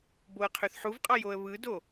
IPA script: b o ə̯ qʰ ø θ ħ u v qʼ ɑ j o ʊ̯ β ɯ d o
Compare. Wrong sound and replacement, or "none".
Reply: ʊ̯ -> ə̯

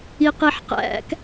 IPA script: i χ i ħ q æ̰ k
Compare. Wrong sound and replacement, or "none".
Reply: χ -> q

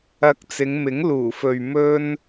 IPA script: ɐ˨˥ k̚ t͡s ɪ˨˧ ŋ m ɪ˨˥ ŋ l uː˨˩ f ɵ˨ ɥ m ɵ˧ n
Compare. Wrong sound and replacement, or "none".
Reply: none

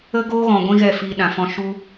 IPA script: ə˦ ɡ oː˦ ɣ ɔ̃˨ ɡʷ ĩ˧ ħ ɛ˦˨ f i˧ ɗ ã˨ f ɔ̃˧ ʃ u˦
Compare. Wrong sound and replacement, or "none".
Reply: ħ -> ɣ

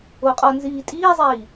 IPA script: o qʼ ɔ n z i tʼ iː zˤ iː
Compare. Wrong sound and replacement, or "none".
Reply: i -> iː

